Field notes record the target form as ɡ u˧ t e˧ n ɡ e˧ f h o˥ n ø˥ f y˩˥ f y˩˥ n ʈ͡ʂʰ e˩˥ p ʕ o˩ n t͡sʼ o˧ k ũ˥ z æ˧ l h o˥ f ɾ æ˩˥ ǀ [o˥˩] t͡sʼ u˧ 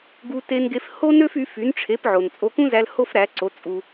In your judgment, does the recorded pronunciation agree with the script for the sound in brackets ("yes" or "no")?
no